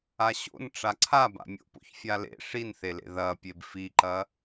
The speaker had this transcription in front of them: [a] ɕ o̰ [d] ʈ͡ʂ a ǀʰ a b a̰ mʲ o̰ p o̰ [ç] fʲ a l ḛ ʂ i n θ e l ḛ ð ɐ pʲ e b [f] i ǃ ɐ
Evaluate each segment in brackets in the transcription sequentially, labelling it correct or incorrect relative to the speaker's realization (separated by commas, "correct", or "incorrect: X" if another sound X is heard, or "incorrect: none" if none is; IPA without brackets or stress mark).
correct, incorrect: n, correct, correct